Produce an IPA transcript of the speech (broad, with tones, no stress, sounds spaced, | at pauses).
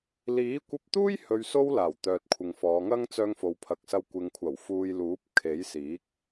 l iː˨˥ kʷ ɐ˧ p̚ t̪ uː˥ j h ɵ˧ ɥ s o˥ w l aː˨˩ w t̪ œː˨ t̚ kʷʰ ɪ˨ ŋ f ɔː˨˧ ŋ ɐ˥ ŋ t͡s œː˧ ŋ f o˨ w pʰ ɐ˨ k̚ s ɐ˧ w kʷ ɪ˨ ŋ kʷʰ ɐ˨˩ w f uː˨ j l uː˨˥ p̚ kʰ e˨˥ j s iː˨˥ k̚